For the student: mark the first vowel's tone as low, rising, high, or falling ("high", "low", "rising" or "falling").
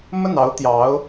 falling